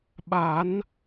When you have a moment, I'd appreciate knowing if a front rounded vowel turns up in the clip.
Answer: no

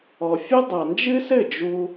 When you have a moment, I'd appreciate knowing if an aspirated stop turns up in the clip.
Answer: no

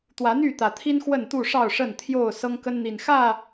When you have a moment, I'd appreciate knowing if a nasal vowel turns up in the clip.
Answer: no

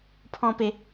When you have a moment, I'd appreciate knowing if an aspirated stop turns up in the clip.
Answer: yes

